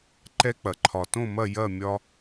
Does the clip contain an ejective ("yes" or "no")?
no